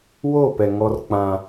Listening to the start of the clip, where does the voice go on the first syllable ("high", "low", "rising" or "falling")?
falling